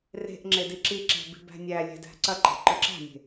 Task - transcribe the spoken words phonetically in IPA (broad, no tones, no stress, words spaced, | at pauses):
re̤ʔ ŋ͡ǁediǁiǁæ̤ bi̤bæ̤nʲælʲæ̤ dæ̤ǀɐǃɛ̤ ǃœǁæ̤nʲe̤